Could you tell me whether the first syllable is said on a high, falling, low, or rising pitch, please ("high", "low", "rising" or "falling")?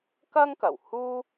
high